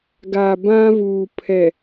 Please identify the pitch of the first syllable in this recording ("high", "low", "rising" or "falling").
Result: low